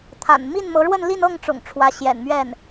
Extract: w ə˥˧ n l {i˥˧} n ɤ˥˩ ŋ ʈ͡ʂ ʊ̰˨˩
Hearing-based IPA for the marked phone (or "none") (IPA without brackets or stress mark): i˥˧